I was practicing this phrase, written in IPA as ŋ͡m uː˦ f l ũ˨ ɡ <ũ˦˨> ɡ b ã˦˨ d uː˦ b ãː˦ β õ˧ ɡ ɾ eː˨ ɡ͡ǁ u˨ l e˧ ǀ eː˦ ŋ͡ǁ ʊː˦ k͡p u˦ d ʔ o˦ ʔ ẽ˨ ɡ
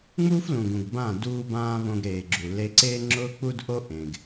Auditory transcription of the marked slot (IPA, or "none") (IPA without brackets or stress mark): ũ˨